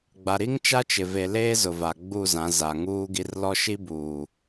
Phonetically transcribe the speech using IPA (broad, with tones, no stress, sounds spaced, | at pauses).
ɡ͡b a˨ ɾ i˦ ŋ t͡ʃ a˦ t͡ʃ ɪ˨ v e˨ l eː˦ z ʊ˨ v a˨ ɡ͡b u˦˨ z ã˨˦ z a˨ ŋ uː˦ ɡ i˦ r l ɔ˦ ʃ i˦ b uː˨